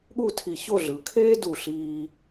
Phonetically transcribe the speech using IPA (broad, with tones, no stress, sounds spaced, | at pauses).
ɠ u˥˧ tʰ i˧˩ ç o˥˧ ɮ ɯ˩˧ kʰ eː˥ d u˧˩ ɬ iː˧